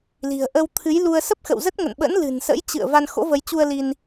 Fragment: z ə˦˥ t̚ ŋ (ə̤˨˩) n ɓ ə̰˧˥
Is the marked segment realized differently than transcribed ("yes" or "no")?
yes